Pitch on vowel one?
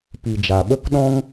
low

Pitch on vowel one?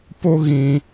high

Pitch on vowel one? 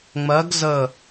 rising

